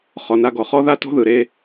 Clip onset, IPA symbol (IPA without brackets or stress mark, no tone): χ